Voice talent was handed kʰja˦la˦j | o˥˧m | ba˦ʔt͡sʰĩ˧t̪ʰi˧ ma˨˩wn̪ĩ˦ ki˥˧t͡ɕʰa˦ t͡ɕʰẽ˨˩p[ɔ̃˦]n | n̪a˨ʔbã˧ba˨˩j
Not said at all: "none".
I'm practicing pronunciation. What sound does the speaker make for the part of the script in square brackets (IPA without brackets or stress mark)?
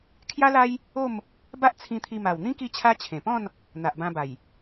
ɔ̃˥˧